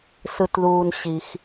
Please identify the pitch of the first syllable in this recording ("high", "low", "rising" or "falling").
low